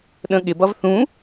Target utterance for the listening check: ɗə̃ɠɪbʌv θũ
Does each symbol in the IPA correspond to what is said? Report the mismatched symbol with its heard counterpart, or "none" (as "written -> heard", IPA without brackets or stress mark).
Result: none